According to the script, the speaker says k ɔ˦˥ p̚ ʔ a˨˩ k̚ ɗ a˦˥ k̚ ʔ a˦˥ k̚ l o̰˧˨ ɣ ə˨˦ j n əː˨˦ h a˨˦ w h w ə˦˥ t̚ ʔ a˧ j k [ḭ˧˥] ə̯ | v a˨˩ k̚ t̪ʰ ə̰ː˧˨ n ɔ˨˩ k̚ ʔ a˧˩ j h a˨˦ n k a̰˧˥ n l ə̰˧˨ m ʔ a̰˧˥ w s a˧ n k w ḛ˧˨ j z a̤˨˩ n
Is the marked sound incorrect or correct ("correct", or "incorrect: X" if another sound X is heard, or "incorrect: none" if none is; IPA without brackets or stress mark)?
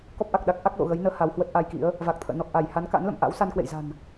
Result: correct